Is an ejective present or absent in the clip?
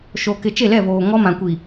absent